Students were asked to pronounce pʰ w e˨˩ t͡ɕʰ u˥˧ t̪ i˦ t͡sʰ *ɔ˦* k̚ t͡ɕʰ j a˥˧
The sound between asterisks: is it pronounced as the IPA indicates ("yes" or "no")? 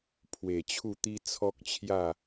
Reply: yes